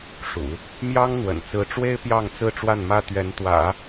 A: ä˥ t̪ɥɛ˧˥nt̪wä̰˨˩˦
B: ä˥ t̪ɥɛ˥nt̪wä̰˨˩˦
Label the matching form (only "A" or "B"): A